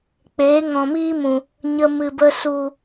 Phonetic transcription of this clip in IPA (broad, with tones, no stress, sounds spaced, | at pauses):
k͡p eː˨˦ ŋ ɔ̃˨ m iː˦ m ũ˨ | ɲ ə˧ m ɨ˨ b ə˧ s u˨